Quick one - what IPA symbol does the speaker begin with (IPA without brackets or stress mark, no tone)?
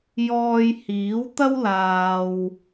j